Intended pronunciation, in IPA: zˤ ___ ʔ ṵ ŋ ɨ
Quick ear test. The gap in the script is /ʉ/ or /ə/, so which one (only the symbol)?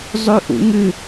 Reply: ʉ